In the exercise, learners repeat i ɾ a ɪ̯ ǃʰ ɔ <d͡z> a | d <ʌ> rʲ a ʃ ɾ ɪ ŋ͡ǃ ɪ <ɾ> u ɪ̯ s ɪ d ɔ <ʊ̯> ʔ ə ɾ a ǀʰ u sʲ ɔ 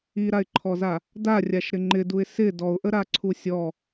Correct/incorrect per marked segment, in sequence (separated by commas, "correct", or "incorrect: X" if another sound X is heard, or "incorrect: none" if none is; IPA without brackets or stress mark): incorrect: z, incorrect: a, incorrect: d, correct